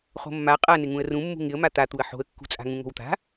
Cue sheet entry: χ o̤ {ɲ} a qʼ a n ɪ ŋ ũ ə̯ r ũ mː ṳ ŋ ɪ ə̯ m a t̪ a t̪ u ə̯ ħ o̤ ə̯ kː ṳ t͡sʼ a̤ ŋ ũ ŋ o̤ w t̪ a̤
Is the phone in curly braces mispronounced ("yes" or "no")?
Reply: yes